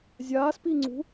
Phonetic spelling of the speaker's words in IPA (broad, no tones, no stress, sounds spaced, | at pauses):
zʲ aː s p i ŋ͡ǀ ṳ